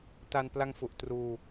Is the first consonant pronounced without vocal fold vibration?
yes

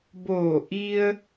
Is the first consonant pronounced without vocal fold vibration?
no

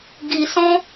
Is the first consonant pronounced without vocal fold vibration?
no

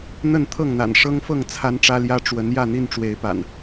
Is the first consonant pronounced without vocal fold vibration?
no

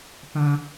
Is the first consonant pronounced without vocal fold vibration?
yes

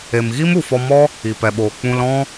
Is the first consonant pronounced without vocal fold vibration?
no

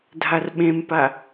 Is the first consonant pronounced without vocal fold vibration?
no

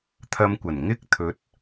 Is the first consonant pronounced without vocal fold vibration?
yes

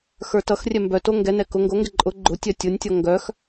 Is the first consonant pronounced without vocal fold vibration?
yes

